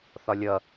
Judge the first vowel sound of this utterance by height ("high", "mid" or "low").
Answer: low